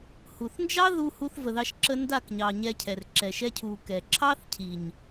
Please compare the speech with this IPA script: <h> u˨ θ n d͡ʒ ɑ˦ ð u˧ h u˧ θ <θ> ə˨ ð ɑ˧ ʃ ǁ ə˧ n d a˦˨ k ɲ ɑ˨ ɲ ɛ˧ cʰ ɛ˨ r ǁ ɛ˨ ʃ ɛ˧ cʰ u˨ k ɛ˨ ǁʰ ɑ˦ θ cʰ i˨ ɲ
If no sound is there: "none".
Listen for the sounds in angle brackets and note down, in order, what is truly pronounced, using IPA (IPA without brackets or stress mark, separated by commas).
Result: h, v